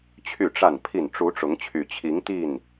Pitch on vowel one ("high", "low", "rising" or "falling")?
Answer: falling